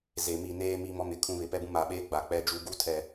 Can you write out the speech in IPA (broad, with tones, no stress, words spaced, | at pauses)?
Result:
ze˨mi˦˨ neː˦ mi˦ mɔ˦mɪ˨kʰũ˦βɪ˨ pɛ˦bũ˦maː˨ɓeː˦ ɡ͡ba˨ k͡pɛ˦d͡ʒu˦ ɡu˦tʰɛ˨